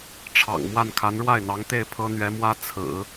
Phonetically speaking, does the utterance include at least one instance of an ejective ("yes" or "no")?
no